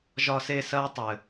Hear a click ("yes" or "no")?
no